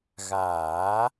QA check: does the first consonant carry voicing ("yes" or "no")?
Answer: yes